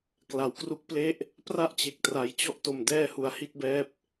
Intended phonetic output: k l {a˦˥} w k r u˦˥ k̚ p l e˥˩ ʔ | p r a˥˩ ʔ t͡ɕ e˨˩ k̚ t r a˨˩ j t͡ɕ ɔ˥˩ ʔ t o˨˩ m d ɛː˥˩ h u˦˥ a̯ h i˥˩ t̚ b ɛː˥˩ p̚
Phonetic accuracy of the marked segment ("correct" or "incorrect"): incorrect